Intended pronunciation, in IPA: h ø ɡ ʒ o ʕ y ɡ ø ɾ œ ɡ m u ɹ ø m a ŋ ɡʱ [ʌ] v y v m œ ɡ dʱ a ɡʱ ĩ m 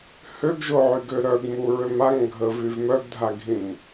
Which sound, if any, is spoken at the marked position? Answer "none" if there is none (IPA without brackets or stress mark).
ə